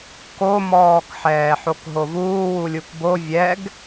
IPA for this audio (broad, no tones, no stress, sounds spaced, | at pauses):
k o m ɔː k ħ ɛː ħ o k ɦ o v uː w u lʲ u k b o vʲ ɛ ɡ